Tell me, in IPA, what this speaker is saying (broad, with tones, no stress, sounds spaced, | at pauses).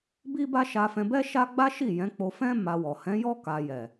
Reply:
b i˦ b a˦ ʃ a˧ f ɛ̃˧ b ɛ˦ ʃ a˦ ɡ͡b a˦ ʃ i˦˨ j ɛ̃˨˦ k͡p o˧ f ɛ̃˦ m a˧ w ɔ˨ h ɛ̃˨˦ j ɔ˦ k a˧ j ɛ˨